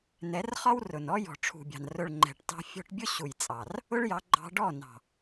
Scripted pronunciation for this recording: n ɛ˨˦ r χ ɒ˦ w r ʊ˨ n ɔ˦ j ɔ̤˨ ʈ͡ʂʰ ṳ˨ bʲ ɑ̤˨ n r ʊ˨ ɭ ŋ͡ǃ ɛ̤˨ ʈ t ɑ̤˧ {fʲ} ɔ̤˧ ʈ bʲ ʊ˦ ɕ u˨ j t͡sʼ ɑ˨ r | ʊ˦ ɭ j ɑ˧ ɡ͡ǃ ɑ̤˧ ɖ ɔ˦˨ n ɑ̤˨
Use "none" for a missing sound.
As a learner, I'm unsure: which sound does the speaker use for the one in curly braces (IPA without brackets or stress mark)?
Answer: fʲ